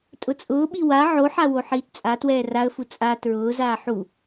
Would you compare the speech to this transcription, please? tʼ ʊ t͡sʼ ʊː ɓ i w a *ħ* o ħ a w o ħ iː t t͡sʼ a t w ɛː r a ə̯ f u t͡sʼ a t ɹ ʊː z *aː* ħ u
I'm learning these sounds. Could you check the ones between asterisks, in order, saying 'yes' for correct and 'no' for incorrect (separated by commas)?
no, yes